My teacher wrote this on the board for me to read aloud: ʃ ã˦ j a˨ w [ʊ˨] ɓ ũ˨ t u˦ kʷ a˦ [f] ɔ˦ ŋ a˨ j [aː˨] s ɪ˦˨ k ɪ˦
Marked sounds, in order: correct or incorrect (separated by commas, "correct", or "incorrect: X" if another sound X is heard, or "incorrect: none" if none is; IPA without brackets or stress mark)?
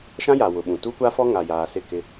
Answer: correct, correct, correct